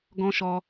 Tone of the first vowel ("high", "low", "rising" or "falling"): high